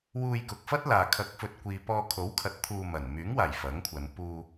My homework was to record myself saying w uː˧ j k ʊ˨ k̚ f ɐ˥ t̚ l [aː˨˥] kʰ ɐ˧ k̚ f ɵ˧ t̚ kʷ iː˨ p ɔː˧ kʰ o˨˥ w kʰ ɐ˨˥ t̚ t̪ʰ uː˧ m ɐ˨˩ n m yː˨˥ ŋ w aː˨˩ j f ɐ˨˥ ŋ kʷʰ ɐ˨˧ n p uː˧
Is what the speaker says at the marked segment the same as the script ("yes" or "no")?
no